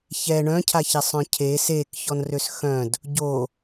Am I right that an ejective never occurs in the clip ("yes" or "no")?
yes